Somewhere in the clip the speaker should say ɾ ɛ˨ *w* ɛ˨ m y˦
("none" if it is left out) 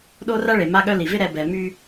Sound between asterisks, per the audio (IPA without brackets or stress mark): b